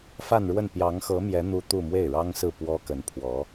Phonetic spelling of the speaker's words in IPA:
f a˥˧ n ɻ w ə˥˩ n p j ɑ˧˥ ŋ x ɤ˧˥ m j ɛ˧˥ n̪ u˥ t̪ u˥˧ m w e˥˩ ɪ̯ ɻ ɑ˥ ŋ s ɹ̩˥˩ p w ɔ˥ k ə˧˥ n pʰ w ɔ˧˥

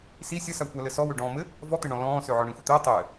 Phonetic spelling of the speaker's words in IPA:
s i sʲ ə s a kʷ a l ɘ s ɔ w ø ɖ ɔ̃ː m ɘ | v ɔ t̪ ɘ ɳ ɔ̃ l ɔ̃ː s ø ʕ ɔ ɳ ĩ xʷ ə t̪ ɘː tˤ ɘː

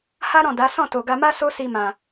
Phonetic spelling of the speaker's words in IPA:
h a˦ ɾ ɔ̃˦˨ d a˨˦ s ɔ̃˦˨ t o˨ ɡ a˧ m a˦ s o˦ s i˧ m ã˨

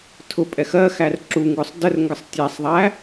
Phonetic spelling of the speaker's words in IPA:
tʰ ʊ pʼ ɛ x ɜ x æ r ǁ u ŋ ɡ ʊ sˤ d ə r ŋ ɡ ə sˤ tʲ æ sˤ ðˤ æ

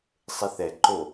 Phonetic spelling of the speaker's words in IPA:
sˤ e θ ɛ ǃ o

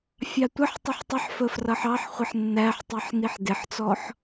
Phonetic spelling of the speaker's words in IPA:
fʲ ɑ tʷ ə ħ tˤ ʌ ħ tˤ ɪ ħ f ə f r ʌ ħ ɑ ħ χʷ ɪ ħ nː æ ħ tˤ i ħ n i ħ d ɪ ħ t͡s ɔ ħ

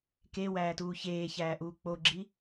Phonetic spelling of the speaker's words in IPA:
k e w æː t uː ç eː ç æː ʔ uː k͡p o ɡ͡ǁ i

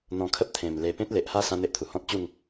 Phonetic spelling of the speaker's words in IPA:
n̪ ɔ̃˧ kʰ ə˦ p̚ t̪ʰ ẽ˨˩ m l e˧ p ẽ˦ t̚ l e˨ ʔ h a˦ s ã˦ n̪ e˦ ʔ t̪ʰ u˨˩ h ɔ̃˦ t̚ t͡ɕ u˥˧ ŋ

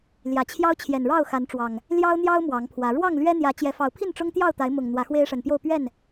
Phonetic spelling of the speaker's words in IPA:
l j ä˨˩ t͡ɕʰ j ɑ˦ ʊ̯ t͡ɕʰ j ɛ˨˩ n ɻ ɑ˥˨ ʊ̯ x a˨˦ n ʈ͡ʂ w ɑ˨˩ ŋ | l j ɑ˦ ʊ̯ n̪ j ɑ˦ ʊ̯ m w ɑ˨˦ ŋ pʰ w ä˨˦ ɻ w ɑ˥˨ ŋ l ɥ ɛ˦ n̪ j ä˨˦ t͡ɕ j ɛ˨˦ f ɑ˨˦ ʊ̯ pʰ i˥˨ n ʈ͡ʂ ʊ˦ ŋ t̪ j ɑ˥˨ ʊ̯ t̪ a˨˦ ɪ̯ m ʊ˨˩ ŋ n̪ w ä˨˦ x w e˦ ɪ̯ ʂ ə˨˩ n p j o˥˨ ʊ̯ p ɥ ɛ˥˨ n

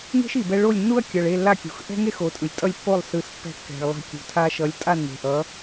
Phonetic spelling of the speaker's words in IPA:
ŋ e̤˥ ʃ i˩ b ɛ˧ ɭ o˥˩ lʲ nː u˥ ɐ̯ kʲ ʌ˩ ɭ e˥˩ lː a˥˩ kʲ ṳ˩ x ʔ ɛ̤˥ ŋ e˥ x o˩˥ tʼ ɯ˩ lʲ tʼ ʌ˥˩ lʲ pː o˥˩ lˠ s ɯ˩˥ s pː ɛ̤˧ kː ɛ̤˩ ɭ lˠ ɛ̤˧ kʲ ṳ˩ tʰ a˧ ʃ ʌ˩˥ lʲ tʼ a˥˩ nː e̤˩ ʔ ʌ˩˥

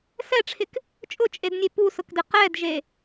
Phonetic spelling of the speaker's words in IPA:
s ɛ ʈ͡ʂʰ ɪ k | t͡ʃʼ ʊ t͡ʃʼ e d nʲ e p u s ʊ k d ɪ q ɛ d ʒ e

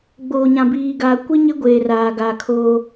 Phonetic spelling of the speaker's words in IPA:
ɡ͡b oː˨ ɲ ã˨ b iː˨ ɡ aː˨ kʷ i˦ ɲ ɪ˦ ɡʷ eː˨ r aː˨ ɡ aː˨ kʰ oː˦

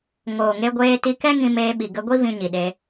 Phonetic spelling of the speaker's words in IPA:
ŋ oː˨ ŋ e˧ ɡʷ eː˧ t i˧ k ɛ˦ ŋ ĩ˧ m eː˧ ɓ i˨ ɡ ə˧ ɡʷ i˦ v ĩ˧ ɲ i˨ ɗ e˧

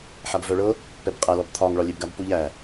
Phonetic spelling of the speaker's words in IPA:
ħ a b v œ ɭ ɤ | p ɛ b qʼ æ l ɔ b t̪ʰ ɒ ŋ ɭ ɒ lʲ e b ɡ a b p u ʎ æ

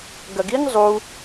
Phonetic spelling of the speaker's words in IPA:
ɡ ɐ ɡ i ŋ zˤ u

